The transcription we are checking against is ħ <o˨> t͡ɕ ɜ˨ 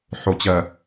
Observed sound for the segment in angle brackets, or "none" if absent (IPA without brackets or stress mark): o˨